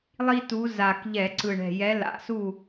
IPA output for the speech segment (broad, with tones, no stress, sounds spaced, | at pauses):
lˠ i˦ t u˨˦ z a˨˩ k ʎ ɛ˧˩˧ ǀ ɯ˨˩ ɳ ɛ̤˨˩ j ɛ˨˦ l a̰˨˩ s u˥˨